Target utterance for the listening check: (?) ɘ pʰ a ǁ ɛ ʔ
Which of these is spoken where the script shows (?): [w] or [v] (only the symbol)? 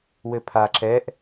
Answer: w